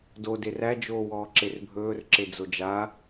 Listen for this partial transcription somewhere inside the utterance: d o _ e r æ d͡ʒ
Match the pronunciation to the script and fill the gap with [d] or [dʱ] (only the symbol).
d